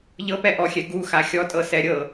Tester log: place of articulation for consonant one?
palatal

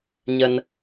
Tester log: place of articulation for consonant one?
palatal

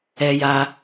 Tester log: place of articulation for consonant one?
palatal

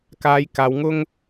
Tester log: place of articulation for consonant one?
velar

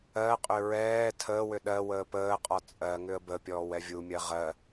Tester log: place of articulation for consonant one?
uvular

